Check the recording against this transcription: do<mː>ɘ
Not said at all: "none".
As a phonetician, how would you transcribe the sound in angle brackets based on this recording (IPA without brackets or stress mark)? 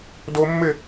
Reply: mː